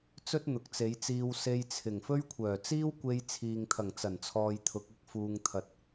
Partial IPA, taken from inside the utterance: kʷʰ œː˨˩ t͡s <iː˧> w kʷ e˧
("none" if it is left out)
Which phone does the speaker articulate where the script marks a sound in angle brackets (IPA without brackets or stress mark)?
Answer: iː˥